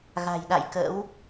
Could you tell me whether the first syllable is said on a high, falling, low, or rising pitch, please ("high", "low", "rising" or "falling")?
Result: low